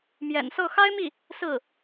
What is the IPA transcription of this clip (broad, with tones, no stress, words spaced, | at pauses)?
mjɛ̰˨˩nsɤ˥˩ xa˥ɪ̯mi˥˩ | sɹ̩˥˩